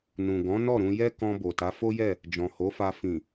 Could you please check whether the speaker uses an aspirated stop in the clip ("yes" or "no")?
no